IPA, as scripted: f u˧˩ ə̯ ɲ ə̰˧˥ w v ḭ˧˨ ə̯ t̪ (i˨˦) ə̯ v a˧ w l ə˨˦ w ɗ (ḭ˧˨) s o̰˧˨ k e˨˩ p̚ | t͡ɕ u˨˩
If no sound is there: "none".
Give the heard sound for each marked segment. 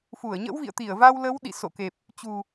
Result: i˧˩, ḭ˧˨

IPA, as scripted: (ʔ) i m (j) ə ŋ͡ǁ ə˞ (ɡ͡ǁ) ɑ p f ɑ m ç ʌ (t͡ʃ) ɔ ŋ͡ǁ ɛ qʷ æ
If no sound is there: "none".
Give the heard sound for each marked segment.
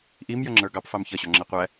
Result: ʔ, j, ɡ, ɕ

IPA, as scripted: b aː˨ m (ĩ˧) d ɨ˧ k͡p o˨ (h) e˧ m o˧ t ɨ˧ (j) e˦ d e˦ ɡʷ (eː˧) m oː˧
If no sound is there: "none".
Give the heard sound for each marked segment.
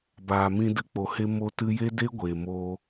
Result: ĩ˧, h, j, eː˨

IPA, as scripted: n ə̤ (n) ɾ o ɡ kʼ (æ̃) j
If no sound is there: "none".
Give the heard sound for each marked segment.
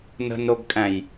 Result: n, æ̃

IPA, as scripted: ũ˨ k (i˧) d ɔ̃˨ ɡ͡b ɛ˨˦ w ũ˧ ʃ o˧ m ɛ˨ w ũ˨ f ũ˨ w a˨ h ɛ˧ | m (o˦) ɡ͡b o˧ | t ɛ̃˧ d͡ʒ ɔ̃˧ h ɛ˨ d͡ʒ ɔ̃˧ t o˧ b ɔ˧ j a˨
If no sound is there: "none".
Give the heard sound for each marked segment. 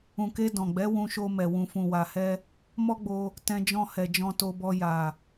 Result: e˧, ɔ˦

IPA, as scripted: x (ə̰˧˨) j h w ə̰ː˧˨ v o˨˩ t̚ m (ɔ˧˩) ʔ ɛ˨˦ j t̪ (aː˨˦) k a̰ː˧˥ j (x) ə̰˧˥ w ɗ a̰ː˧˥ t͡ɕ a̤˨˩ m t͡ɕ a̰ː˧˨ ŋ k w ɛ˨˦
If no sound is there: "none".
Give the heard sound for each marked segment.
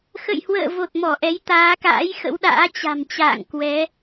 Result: ə̰˧˨, ɔ˧˩, aː˨˦, x

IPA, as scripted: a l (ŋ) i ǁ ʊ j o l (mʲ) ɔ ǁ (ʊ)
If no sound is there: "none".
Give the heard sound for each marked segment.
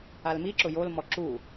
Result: m, m, u

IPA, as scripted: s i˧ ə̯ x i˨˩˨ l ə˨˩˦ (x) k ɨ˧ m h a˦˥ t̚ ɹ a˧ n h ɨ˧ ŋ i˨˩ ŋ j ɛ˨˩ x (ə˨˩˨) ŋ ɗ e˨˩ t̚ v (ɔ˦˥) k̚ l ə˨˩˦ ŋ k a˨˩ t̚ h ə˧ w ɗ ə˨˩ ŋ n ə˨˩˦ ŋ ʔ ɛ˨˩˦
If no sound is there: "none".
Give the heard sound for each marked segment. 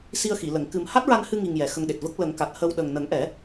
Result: ŋ, ə˧, ə˦˥

